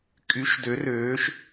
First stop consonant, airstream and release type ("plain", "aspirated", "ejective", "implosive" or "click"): ejective